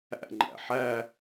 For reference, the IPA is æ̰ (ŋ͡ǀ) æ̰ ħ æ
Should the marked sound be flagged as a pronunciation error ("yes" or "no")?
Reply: yes